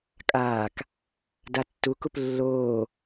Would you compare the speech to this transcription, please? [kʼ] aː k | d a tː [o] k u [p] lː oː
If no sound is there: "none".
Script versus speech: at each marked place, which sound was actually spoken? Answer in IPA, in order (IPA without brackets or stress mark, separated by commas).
kʼ, u, p